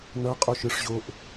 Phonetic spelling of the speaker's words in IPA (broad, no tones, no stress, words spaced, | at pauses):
nʌqʼoʃɯʂʑoʔ